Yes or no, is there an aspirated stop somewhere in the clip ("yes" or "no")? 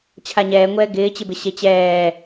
yes